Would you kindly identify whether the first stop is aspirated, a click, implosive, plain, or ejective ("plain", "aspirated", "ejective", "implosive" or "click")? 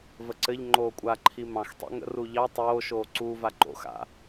click